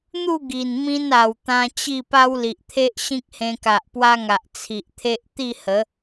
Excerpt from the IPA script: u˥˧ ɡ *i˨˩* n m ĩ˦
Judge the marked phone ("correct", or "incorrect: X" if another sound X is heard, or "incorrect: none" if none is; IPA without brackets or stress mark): correct